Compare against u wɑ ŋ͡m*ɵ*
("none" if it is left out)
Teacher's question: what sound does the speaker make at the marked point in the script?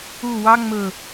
ɵ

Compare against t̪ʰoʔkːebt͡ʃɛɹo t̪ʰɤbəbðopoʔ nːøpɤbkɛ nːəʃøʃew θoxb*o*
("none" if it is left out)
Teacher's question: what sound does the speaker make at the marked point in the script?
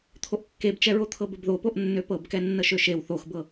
ɤ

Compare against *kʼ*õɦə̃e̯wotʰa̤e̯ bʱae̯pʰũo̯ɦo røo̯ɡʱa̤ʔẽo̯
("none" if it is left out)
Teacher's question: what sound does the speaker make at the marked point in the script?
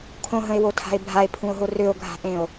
kʰ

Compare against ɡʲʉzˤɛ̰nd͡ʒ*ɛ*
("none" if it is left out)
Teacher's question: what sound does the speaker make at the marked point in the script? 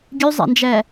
ɛ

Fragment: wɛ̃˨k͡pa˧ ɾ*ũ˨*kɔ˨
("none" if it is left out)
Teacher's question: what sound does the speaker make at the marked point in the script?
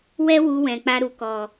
u˨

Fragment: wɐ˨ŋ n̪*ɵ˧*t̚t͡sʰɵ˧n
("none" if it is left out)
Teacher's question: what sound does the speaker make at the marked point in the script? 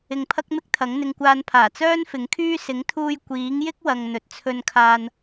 ɵ˨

